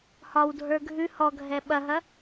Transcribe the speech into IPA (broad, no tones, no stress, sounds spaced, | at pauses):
h ɒ w dʱ ə˞ ɡʱ ʉ h ɔ ɡʱ ɛ ɓ ɐ ɦ ɐ